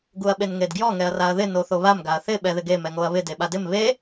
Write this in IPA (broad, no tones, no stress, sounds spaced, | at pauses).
ɡ u ɐ̯ ɓ e n ŋ e d ɡ j ɔ ŋ ɛ ɐ̯ r a ɐ̯ ð ɪ n o θ o β a m ɡ a ɐ̯ θ ɪ ɓ ɛ ð ɪ ɡ e m ɛ ŋ o ɐ̯ β ɪ d e ɓ a d ɪ m β e